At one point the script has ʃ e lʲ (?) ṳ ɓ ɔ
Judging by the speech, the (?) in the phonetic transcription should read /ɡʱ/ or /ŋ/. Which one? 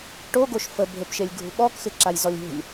ɡʱ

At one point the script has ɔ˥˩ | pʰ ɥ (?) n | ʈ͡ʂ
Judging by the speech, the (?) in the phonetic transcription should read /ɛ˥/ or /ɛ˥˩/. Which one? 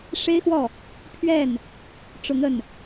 ɛ˥˩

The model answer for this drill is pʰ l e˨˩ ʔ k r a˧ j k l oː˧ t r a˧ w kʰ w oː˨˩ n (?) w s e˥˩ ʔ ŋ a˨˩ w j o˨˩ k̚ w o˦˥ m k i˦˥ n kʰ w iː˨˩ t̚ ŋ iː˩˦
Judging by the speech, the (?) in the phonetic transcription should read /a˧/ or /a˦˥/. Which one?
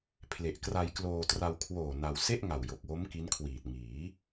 a˧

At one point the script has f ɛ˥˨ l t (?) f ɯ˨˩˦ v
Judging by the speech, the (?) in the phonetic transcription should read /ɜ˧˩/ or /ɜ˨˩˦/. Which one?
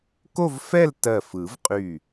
ɜ˧˩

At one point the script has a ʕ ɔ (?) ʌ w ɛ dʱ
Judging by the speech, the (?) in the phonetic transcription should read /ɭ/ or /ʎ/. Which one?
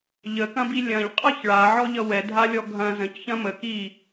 ʎ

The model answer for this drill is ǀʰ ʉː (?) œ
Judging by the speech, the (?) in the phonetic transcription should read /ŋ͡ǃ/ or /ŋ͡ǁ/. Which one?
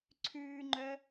ŋ͡ǃ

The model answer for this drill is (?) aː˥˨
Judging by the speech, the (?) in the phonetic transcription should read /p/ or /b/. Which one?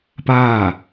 p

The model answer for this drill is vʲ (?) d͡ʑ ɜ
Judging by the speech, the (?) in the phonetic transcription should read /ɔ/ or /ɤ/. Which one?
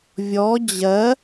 ɔ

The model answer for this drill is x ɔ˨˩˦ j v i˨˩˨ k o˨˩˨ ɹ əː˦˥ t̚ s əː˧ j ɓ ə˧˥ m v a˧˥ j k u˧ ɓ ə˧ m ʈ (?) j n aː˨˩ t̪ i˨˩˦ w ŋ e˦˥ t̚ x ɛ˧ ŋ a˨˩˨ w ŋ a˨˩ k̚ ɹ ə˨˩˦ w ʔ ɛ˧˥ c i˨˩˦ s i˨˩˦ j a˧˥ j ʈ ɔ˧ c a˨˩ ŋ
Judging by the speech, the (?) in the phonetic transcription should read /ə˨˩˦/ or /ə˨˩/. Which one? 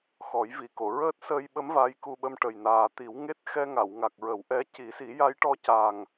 ə˨˩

